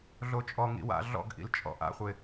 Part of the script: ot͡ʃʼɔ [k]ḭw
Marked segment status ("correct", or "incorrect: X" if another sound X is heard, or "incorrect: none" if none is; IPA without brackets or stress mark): incorrect: ŋ